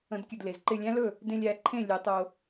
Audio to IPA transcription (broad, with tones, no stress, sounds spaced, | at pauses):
ə̃˨˩˦ d kʲ ɵ˧˩ d l e˩ z ǃ ɪ˧˩ lʲ æ̃˧˥ l ɵ˥˩ | d ẽ˧ lʲ æ˧˩ ǃʰ ẽ˥˩ lʲ e˨˩˦ tˤ o˧